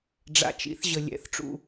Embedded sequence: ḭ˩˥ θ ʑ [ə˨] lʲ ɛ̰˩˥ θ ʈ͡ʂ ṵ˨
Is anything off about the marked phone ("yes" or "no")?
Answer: no